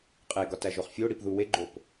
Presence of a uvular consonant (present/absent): present